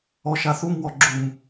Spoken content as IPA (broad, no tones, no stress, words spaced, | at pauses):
ɔʃaθum wɔɡ͡ǁum